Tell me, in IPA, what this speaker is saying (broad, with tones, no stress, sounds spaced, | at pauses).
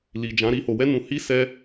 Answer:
l i˨ d͡ʒ ã˨˦ ɾ i˦ h o˧ w ɛ˦ n ũ˧ h i˦ s ɛ˦